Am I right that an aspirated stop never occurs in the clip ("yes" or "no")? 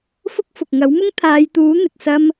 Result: no